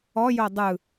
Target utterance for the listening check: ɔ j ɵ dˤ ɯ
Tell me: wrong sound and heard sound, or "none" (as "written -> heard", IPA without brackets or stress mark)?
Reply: ɵ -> o